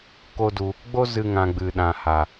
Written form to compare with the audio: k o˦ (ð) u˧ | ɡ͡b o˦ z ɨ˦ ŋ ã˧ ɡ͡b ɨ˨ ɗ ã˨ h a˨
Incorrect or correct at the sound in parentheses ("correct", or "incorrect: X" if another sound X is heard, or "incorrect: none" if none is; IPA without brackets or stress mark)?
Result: incorrect: d